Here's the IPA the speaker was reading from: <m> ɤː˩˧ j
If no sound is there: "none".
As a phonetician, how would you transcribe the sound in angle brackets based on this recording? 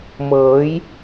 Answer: m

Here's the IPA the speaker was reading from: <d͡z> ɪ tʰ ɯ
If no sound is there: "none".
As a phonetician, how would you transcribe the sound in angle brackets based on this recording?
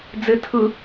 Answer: d͡z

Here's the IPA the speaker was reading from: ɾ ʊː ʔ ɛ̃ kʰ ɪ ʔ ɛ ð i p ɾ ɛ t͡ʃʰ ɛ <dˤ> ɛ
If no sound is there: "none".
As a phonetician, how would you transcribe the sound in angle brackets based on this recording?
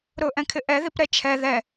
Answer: ð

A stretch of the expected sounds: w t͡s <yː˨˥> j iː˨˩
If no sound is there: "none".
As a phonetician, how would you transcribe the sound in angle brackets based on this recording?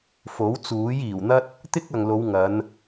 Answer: uː˨˥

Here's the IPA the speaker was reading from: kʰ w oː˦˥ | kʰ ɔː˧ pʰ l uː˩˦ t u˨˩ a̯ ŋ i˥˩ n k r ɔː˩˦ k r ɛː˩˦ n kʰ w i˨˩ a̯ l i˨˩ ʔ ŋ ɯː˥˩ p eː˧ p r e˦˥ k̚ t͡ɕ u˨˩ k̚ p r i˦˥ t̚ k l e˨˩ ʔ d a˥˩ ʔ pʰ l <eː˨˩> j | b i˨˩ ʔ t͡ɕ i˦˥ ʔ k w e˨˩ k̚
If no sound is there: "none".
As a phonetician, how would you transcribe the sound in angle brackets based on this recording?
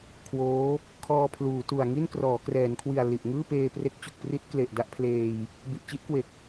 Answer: eː˧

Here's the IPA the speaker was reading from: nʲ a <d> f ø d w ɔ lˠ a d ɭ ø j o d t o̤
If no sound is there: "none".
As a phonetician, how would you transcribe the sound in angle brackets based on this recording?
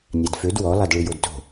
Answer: d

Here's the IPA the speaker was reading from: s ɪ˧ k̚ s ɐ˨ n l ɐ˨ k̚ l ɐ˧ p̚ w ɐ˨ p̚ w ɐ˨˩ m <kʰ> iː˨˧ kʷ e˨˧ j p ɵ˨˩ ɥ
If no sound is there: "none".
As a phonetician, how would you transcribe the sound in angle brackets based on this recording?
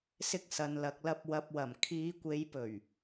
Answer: kʰ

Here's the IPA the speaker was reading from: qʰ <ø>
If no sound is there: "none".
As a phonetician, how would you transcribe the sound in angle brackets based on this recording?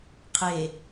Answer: e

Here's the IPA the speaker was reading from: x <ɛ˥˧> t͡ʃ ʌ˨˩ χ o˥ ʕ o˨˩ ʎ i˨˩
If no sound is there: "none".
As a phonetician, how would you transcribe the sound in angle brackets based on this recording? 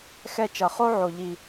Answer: ɛ˥˧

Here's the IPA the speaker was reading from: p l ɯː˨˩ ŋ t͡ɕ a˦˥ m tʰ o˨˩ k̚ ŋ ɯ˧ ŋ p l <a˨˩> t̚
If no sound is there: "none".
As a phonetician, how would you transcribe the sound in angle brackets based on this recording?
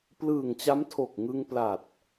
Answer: a˨˩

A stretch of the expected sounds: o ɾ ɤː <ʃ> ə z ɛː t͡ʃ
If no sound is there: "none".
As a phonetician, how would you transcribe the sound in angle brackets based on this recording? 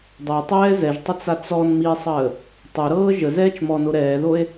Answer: ʒ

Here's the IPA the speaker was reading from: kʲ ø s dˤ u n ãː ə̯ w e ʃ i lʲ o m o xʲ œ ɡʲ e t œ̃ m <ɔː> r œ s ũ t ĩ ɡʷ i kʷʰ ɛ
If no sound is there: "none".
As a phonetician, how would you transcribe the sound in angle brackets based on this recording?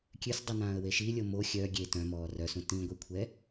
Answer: ɔː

